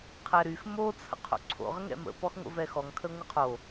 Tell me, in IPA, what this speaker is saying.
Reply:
qʰ ɛ ɾ y x m o t͡sʰ ə̰ qʰ o̰ ǀʰ o̰ ʁ ə ŋ ɛ̰ m ə̰ p ɔ x ŋʷ ə̰ v ɛ x ɔ ŋ kʰ ə ŋʷ ə qʰ o

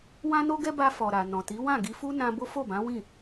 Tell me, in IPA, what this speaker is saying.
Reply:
w ã˦ n o˦ ɡ ɛ˦ b a˧ f ɔ˨ ɾ a˨ n ɔ̃˨ t i˨˦ w ã˦˨ ɡ i˧ f u˦ n ã˧ b o˦ f o˦˨ b ã˨˦ w ĩ˦˨

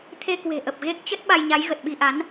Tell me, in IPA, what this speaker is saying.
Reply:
t̪ʰ e˧ k w e̤˨˩ ʔ ə˨˩ p̚ ɣ e˦˥ k̚ t͡ɕ ə˦˥ t̚ ɓ a˧ j ɲ a˨˦ j ɣ ə˨˩ t̚ ɓ i˧ ʔ a˨˦ n

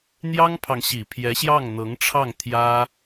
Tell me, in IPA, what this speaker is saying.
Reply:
n̪ j ɑ˥ ŋ pʰ ɑ˨ ŋ ɕ i˨˩ pʰ j ɛ˧˥ ɕ j ɑ˥˩ ŋ n̪ ɤ˧˥ ŋ ʈ͡ʂʰ ɑ˥˩ ŋ t̪ʰ j ä˥

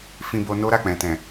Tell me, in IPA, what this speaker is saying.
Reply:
f ĩ˧ b o˧ n o˦ ɾ a˦˨ k͡p ɛ̃˨ t ɛ̃˨

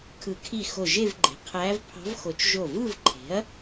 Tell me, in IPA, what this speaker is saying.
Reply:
kʰ ɯ˨˩˦ kʰ i˧˩ x o˧˩ ʒ e˥˧ v ɡ͡ǃ e̤˩˥ qʰ æː˧˥ v pʰ ɑ̤˧˥ v x o˨˩˦ t͡ʃ ʒ o˧˩ v ɯ˥˧ v ǃʰ e̤˩˥ ɐ̯

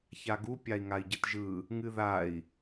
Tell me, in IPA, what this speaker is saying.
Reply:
ç a ɡ u pʲ a i̯ ŋ a i̯ ɟ ɨ t ʒ ɯ | ŋ ɨ ð a i̯

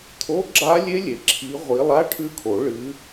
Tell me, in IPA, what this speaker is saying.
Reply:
t̪ʰ o˧˥˧ ɡ͡ǁ a˦˥ lʲ e˦˥ lʲ e˩ ǁʰ i˨˦ ʁʷ i˨˦ lˠ a˧˥˧ ʈʰ ʉ˦˥ kʰ o˨˩˦ ɭ ɨ˨˦

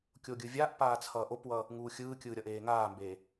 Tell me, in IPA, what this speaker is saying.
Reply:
kʲ o ɡʲ ɯ vʲ a ʔ p aː t͡sʰ ʌː ʔ o p w ʌ | ŋ uː xʲ ɯː kʲ ɯː ɾʲ ʌ ʔ eː ŋ aː m b e

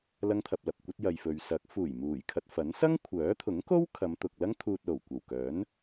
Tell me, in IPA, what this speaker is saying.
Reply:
l ɐ˥ ŋ t̪ʰ ɐ˧ p̚ l ɐ˨ p̚ kʷ ɐ˥ t̚ j ɐ˨ j f ɵ˨ ɥ s ɐ˨˥ k̚ f uː˨˩ j m uː˨˩ j kʰ ɐ˧ t̚ f ɐ˨˥ n s ɐ˥ ŋ kʷʰ œː˨˥ t̪ʰ ʊ˨˥ ŋ k o˥ w kʰ ɐ˨˧ m t̪ ʊ˨ k̚ l ɐ˥ ŋ t̪ʰ uː˧ t̚ l o˨˩ w kʷ ɐ˨˩ w k œː˨˥ n

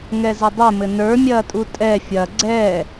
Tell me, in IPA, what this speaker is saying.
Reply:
ŋ ɛ z ɘ dˤ ɘ m ɘ n ə˞ mʲ ɐː tʼ u tʼ ɛ fʲ ɐ ɡ͡ǀ ɛ

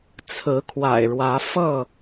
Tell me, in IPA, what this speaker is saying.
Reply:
t͡sʰ ɹ̩˨˦ kʰ w a̰˨˩ ɪ̯ ɻ w ä˨˦ f ɤ˥˨

